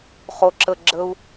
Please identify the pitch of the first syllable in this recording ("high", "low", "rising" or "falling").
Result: low